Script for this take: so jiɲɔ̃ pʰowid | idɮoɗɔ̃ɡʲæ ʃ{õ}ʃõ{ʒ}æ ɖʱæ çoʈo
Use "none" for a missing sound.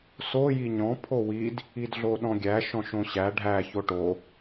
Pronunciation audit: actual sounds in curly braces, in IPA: ɔ̃, ɕ

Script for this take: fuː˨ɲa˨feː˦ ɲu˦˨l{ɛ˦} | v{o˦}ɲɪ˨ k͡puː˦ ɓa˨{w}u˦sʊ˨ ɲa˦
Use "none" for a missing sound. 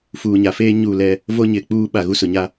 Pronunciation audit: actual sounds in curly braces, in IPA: ɛ˦, o˦, ɣ

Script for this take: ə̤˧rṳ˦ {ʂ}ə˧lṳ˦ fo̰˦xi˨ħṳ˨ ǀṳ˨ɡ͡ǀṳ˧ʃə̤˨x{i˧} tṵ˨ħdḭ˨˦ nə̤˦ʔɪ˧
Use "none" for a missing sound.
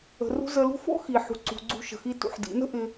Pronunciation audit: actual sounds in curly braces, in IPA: z, i˧

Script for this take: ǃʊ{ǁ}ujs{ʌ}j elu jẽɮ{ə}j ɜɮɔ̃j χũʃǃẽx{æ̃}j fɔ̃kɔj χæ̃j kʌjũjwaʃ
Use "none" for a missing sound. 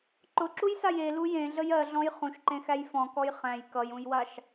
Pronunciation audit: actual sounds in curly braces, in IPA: ǁ, a, ə, æ

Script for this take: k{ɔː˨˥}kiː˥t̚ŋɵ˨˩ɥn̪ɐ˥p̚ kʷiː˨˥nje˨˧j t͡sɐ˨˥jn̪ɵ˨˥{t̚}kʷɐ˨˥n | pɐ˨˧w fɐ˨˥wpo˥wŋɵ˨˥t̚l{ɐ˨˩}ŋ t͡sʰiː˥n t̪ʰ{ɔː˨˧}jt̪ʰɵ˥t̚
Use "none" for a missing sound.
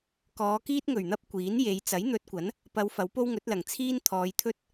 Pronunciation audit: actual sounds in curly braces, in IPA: ɔː˨˧, t̚, ɐ˨˩, ɔː˨˧

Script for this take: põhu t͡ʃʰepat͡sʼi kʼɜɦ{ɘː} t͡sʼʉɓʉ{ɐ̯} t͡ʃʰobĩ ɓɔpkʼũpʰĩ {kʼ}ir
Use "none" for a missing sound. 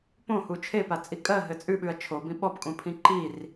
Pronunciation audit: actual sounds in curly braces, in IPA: ɘ, ɐ̯, ǃ

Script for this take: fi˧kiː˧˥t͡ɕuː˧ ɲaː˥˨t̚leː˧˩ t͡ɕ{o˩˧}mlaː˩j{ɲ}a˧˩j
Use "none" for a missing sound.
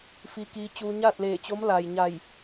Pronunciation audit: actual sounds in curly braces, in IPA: o˧˥, ɲ

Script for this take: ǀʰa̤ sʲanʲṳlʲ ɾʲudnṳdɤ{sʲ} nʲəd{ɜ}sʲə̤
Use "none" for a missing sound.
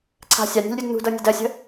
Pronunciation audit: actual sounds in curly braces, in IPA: none, ɜ

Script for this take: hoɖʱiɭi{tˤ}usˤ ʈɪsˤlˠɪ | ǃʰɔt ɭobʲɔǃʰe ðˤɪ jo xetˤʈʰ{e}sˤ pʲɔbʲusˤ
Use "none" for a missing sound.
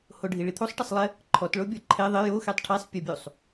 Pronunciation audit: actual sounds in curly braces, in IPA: t̪ʰ, e

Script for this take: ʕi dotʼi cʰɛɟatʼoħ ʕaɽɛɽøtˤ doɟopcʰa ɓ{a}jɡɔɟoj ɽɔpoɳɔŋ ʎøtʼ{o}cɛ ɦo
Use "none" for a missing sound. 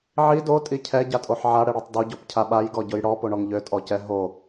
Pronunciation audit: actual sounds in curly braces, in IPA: a, ɔ

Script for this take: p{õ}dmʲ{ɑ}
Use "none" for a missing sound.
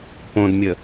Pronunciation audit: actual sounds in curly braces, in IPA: õ, ə

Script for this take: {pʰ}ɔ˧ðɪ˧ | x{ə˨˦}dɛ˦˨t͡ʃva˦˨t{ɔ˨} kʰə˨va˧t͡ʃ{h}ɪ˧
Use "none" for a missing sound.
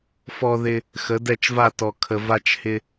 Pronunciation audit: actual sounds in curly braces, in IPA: f, ə˨˦, ɔ˨, h

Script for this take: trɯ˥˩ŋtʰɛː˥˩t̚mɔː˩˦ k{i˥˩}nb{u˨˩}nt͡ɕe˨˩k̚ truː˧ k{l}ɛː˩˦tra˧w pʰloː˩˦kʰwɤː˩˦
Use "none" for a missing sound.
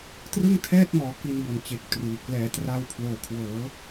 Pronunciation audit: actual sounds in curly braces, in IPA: i˧, o˨˩, l

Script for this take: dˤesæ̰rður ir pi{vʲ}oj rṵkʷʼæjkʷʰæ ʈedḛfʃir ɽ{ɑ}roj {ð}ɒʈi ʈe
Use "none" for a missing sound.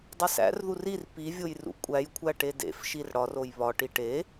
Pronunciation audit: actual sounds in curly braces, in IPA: vʲ, ɒ, β

